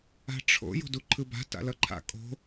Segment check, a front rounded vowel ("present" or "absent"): absent